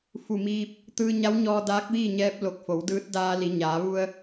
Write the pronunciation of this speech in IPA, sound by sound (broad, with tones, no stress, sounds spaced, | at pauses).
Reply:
f u˧˩ m iː˧ p̚ | t̪ ɯː˧ ɲ a˧˥ w ɲ ɔː˧ d aː˧˥ k̚ ʋ iː˥˨ ɲ ɛː˧˥ p̚ l o˧˩ k̚ f o˩˧ w d ɯː˧˥ t̚ d aː˧ l i˩˧ ɲ aː˩˧ ʋ u˧ ə̯